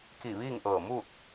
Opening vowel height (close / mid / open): close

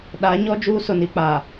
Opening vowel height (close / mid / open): open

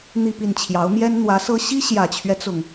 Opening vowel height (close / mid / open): close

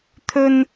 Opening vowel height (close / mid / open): mid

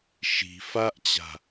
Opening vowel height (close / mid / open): close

